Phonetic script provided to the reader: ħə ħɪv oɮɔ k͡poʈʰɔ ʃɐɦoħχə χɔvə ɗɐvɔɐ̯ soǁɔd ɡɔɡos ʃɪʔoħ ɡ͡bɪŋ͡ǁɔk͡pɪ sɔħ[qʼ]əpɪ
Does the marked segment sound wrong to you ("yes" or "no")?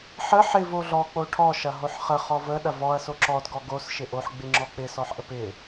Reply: yes